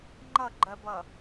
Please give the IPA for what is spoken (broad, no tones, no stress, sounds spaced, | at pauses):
ŋ͡ǃ ʌ ɡ͡ǃ ɜ b ʌ